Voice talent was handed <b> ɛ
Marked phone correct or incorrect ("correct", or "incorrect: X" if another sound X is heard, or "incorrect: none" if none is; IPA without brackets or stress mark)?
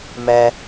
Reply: incorrect: m